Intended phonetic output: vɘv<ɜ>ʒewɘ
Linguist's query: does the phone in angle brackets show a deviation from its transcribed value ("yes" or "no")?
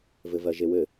no